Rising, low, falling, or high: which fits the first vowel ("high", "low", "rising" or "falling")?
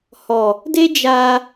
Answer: low